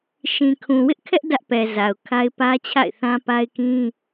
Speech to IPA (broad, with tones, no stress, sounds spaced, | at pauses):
ʃ ĩ˨ kʰ ũ˨ w ɪ˦ ʔ kʰ ɛ˦ ʔ d ä˦ ʔ p ɛ˨ z a˨ ʊ̯ kʰ a˦ ɪ̯ p ä˦ t͡ɕʰ a̰˦˨ ɪ̯ θ ã˦ p a˦ ɪ̯ k ĩ˦